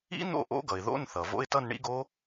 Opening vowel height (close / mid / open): close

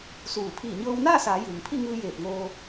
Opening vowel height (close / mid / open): close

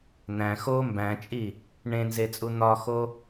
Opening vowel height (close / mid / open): open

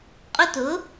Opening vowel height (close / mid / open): close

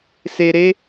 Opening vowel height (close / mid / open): mid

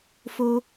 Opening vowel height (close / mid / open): mid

